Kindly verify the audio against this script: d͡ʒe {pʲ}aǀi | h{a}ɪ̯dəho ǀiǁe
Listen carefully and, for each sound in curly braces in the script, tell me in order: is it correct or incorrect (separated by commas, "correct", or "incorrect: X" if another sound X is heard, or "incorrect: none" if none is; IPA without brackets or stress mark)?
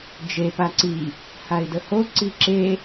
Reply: incorrect: p, correct